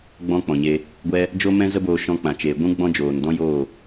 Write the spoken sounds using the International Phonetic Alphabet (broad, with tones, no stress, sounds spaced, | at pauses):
ɡ͡b ɔ̃˦ k͡p ɔ̃˨ ɲ e˧ | ɡʷ ɛ˦ | d͡ʒ o˦ m ɛ̃˦ z ə˦ b oː˧ ʃ ɔ̃˧ k͡p ã˨ t͡ʃ eː˨ ɡʷ ũ˦ ɡ͡b ɔ̃˦ d͡ʒ oː˨ n d ɔ̃˦ j oː˦˨